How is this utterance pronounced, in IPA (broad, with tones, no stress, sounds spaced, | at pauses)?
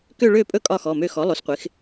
k ø˥˧ ɭ ø˥˧ pʼ ɵ˥˧ kʼ ɒ˥˧ x ɔ˩˧˩ m ø˥˧ x ɔ˩˥ lˠ o˩˥ s qʷ ɪ˩˥ x